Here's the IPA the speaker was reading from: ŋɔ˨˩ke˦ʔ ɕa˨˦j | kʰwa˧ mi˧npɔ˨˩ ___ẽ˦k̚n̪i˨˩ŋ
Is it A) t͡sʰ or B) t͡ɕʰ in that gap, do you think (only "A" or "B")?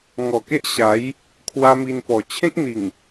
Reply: B